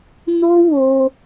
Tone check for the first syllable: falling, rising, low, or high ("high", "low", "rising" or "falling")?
high